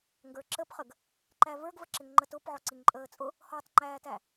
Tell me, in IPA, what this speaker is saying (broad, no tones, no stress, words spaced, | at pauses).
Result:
ŋɡə˞ǁəpχəɡ | ǃævə˞ɡvəǁɪŋ ŋ͡ǃətʊp ʕɔǀiŋǃʼəːt͡sʼʊ | hɔtˤŋ͡ǃæːtæ